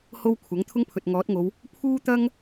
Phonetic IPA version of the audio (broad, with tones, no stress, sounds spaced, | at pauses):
h o˥ w kʷʰ ɐ˨˥ ŋ t̪ʰ ʊ˥ ŋ pʰ ɵ˨ t̚ ŋ ɔː˨˥ t̚ ŋ o˨˧ w | pʰ uː˥ t̪ ɐ˥ ŋ